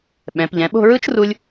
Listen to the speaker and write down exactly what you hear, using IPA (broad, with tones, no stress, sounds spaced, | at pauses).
ɓ ɛ̃˩˧ p ʎ ɛ̃˩˧ ɓ o̤˥˧ ɹ ɯ˥ t͡ʃ r u˥ lʲ